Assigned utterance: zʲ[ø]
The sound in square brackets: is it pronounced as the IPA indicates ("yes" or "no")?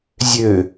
yes